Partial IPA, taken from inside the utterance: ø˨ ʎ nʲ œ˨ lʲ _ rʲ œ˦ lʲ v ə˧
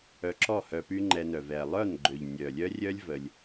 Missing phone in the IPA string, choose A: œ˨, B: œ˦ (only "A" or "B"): B